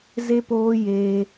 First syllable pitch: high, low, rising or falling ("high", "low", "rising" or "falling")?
high